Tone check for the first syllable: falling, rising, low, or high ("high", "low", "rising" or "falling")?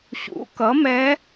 rising